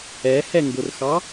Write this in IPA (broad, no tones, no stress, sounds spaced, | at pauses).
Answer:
ɛ h ɛ ŋ ɡ ʊ r x ɑ